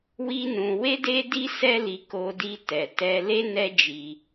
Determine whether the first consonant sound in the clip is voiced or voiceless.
voiced